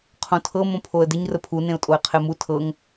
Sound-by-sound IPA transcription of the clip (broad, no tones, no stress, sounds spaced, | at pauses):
qʰ õ tʰ ɤ m õ pʰ o ə̯ d ɪ ɲ r ə pʰ u n ẽ ʊ̯ tʼ o ɪ̯ qʰ e m u tʰ ɤ ŋ